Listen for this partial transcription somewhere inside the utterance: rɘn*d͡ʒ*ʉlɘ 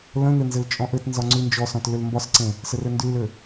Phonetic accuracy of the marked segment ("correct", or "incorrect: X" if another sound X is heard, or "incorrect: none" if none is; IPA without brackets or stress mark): incorrect: d